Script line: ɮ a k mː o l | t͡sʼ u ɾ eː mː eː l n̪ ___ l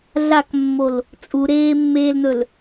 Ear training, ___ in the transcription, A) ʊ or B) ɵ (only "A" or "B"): B